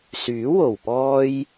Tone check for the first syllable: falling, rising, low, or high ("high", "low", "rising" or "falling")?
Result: rising